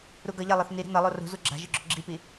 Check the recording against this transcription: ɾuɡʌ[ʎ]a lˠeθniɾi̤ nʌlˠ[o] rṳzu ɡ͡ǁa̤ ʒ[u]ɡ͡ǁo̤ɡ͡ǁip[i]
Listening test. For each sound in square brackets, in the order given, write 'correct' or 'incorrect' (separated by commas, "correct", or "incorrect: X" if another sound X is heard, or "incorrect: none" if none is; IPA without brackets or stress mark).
correct, correct, incorrect: ɯ, correct